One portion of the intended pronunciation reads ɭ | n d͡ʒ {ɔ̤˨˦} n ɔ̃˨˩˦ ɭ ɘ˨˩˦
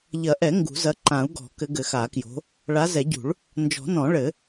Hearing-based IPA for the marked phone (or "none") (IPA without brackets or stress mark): ɔ̤˨˩˦